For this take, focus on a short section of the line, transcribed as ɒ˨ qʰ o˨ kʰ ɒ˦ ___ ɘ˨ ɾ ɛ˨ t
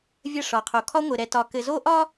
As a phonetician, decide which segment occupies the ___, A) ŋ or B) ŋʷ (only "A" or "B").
B